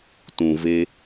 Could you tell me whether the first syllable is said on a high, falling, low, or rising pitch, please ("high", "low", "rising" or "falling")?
low